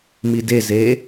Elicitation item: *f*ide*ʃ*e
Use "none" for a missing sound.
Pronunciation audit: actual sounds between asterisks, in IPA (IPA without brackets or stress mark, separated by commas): m, z